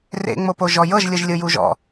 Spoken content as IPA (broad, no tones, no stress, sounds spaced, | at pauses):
r ḛ ŋ͡m o p o ʒ ɔ j ɤ ʒ lʲ ɯ ʒ lʲ ɯ j u ʒ ɔ̰